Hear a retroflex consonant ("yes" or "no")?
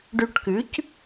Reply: yes